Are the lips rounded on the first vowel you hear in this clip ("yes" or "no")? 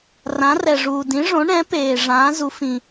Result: no